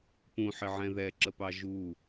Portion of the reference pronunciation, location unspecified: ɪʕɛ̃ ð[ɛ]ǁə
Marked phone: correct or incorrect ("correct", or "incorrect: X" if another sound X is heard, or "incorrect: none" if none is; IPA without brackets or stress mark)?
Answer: correct